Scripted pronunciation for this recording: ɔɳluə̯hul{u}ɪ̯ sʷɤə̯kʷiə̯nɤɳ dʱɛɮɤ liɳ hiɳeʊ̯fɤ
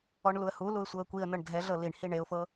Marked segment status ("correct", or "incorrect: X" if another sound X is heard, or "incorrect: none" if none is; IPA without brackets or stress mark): correct